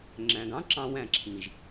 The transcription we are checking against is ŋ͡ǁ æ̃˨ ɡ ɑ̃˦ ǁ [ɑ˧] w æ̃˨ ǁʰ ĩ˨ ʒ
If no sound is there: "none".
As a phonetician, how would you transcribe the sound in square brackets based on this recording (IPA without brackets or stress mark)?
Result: ɑ̃˧